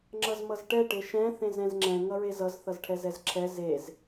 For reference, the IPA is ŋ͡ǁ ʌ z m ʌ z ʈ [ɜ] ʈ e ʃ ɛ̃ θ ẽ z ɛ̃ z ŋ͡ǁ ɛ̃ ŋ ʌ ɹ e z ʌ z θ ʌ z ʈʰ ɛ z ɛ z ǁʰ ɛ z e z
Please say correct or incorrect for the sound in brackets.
incorrect